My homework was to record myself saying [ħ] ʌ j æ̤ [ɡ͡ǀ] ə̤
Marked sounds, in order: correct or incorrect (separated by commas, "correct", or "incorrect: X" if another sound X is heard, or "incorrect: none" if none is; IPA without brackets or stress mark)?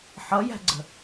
correct, correct